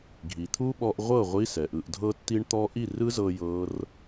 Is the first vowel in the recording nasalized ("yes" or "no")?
no